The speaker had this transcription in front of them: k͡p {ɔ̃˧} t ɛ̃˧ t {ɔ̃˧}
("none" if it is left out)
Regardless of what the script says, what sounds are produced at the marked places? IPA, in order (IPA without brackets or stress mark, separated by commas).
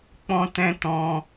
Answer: ɔ̃˧, ɔ̃˧